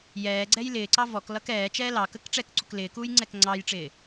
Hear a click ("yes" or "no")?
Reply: yes